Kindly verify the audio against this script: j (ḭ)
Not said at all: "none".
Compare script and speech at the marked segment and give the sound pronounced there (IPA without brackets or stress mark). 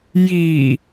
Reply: i